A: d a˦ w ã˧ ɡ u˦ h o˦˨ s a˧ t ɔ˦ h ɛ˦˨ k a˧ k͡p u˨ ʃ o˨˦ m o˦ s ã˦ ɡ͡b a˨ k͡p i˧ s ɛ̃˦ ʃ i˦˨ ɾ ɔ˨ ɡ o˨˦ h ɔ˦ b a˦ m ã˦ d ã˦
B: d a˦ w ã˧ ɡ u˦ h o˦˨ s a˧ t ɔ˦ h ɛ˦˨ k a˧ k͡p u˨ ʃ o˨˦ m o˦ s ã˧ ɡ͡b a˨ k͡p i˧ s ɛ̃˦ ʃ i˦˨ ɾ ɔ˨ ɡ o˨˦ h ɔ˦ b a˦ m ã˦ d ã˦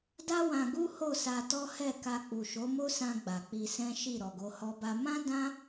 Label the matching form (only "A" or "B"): B